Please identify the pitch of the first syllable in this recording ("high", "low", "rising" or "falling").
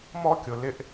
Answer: high